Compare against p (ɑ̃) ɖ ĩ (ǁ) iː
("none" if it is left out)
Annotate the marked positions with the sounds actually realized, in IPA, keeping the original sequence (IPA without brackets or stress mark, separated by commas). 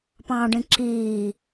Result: ɑ̃, ǁ